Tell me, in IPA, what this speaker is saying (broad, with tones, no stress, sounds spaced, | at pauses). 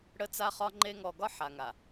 ɽ ə˦ t͡s a˦ χ ɒ˦ ŋ͡ǃ e˦ ŋ ɔ˨ ɡ ɒ˦ ħ a˨ ŋ a˨